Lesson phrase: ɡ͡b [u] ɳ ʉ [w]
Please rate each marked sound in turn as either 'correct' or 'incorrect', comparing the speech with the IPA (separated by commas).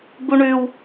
correct, correct